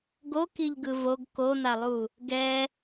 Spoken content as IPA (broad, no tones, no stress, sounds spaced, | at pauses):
ɡ o k i ʎ ɡ ɯ v o ɡ k o n̪ a lˠ u | ɡ ɛ